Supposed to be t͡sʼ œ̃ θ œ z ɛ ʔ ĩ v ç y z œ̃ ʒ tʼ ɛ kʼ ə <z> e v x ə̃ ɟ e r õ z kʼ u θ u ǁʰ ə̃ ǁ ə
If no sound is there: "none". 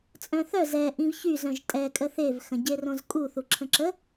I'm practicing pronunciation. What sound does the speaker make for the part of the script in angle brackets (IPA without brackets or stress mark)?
θ